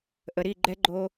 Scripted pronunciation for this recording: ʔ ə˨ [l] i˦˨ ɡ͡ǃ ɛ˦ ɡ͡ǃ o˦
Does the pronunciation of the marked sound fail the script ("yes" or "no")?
yes